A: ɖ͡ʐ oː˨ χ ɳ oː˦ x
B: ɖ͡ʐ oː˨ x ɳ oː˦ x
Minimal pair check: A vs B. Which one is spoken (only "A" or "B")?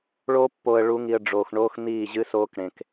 B